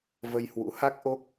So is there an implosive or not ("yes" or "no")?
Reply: no